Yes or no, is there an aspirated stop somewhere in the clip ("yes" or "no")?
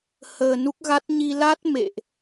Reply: no